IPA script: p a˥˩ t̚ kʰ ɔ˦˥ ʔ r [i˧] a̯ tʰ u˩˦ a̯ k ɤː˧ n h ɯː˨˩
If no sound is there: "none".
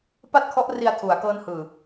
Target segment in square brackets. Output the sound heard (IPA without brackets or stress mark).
i˧